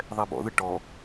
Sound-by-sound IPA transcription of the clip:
ðˤ ɛ b ɔ̰ ð ɯ ʈ ɔ

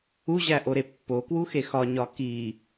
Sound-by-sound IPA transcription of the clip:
u ʑ æ ʔ o ɾ e pː o k w u x e x ɒ ɲ ɒ k i

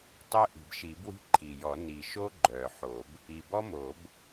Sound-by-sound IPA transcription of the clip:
tˤ œ˥ ʔ i̤˨˩ b ʃ i˨˩˦ b w i̤˥ ǃʰ i˨˩ j ɔ˨˩˦ n i˨˩ ʃ o˥ ɡ͡ǃ œ˨˩ ħ o˨˩˦ b | i˨˩ b ɔ˥ m o˨˩˦ b

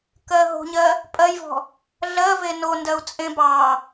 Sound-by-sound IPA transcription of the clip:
k ɜ ɦ o̤ ɲ ɜ | pʼ ɜ j v ɔ̤ | ɮ ɜ v e n o n d ɜ u̯ t͡sʼ ẽ b ɑ

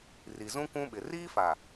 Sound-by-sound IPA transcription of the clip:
r i˨ z ũ˦ kʷ ũ˦ ɓ ɪ˨ r iː˦ f a˨

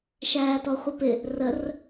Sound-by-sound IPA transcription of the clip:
ʃ æː t ɔ χʷ ʌ p ɪ | r ə r

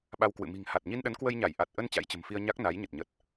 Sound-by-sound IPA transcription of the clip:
ɓ a˧ w k w ɨ̰˧˨ m i̤˨˩ ŋ h a˨˩ t̚ ɲ i˧ n ɗ ə˨˦ n k w ə˧ j ɲ a˧˩ j ʔ a˨˩ t̚ ʔ ə˧ n t͡ɕ a̰˧˥ j t͡ɕ ə̤˨˩ m f i˧ ə̯ ɲ a˦˥ k̚ n a˨˦ j ɲ ə˨˩ t̚ ɲ ə˨˩ t̚

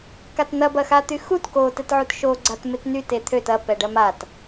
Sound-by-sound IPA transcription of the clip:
k a t n̪ ɐ b ɐ x a t̪ y x u t k o t ɛ t ʕ u t ʃ o ɡ͡ǀ a t m ɪ t n y t e t̪ʰ ø t ɐ p ɛ ɖ ɐ m a t

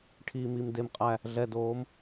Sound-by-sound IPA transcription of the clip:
ʈʰ iː˨ m i˨ m d e˦ m qʼ æ˦ | ɮ ɛ˨ d oː˨˦ m

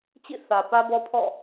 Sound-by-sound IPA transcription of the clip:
t͡ɕ ḭ˦˨ θ ä˨ p ä˦ b ɔ˦ pʰ ɔ̰˦˨

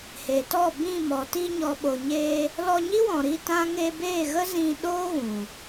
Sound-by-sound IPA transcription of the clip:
h eː˨ t ɔ˦˨ b ĩ˦˨ m ɔ˨ t i˧ ɲ ɔ˨ ɓ o˨ ɲ eː˧ | l ɔ˧ ɲ i˦ w ɔ̃˨ ɾ i˧ t ã˦ ŋ e˧ b eː˦˨ ɣ ə˦ z ĩ˧ ɗ oː˦ ɣ ũ˨

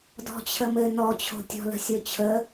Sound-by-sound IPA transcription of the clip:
d ɔ̤ t͡ɕʰ ə m ɘ n ɔ t͡ɕʰ o̤ tʲ ɔ̤ l ə̤ sʲ o t͡ɕʰ ə

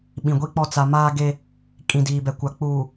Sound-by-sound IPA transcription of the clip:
ɓ ĩ˨ ɡʷ i˦ k͡p ɔ˦ t͡s a˨ m aː˦ ɡ e˦ | kʼ ĩ˨ d iː˨ b ɛ˨ kʷ a˨ k͡p uː˨

